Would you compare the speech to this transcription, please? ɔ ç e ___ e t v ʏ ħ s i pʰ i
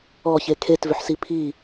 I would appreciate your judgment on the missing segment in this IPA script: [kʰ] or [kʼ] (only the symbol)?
kʰ